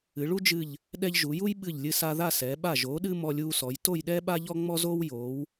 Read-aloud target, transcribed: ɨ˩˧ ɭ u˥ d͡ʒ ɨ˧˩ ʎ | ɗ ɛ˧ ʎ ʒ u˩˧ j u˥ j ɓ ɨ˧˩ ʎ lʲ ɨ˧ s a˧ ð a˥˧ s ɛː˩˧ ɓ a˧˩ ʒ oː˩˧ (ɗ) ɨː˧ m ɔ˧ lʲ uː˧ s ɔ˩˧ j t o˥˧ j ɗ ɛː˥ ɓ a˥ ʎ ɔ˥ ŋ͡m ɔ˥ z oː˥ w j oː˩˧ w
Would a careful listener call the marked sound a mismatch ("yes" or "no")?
no